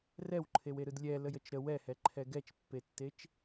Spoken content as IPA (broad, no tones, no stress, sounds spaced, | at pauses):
r ɛ w ǃʰ e w e ɾ ɯ d lʲ ɛ l ə j ə t͡ʃ ɾ ə w ɛ h ɛ ǃʰ ɛ ɡ ɛ t͡ʃ pː e tː e t͡ʃ